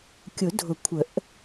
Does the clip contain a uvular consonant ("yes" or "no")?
no